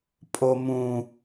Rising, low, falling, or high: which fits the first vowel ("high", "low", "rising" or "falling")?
high